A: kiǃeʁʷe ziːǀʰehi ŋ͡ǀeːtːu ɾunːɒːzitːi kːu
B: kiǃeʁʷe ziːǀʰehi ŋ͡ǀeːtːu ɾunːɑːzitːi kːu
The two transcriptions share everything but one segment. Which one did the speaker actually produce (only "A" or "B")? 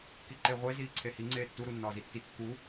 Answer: A